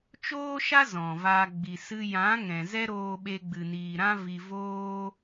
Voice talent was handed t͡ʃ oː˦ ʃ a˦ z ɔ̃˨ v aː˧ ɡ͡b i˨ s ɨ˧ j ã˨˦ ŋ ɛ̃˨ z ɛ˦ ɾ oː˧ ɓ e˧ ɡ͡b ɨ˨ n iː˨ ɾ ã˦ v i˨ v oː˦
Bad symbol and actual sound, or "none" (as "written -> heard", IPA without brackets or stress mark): none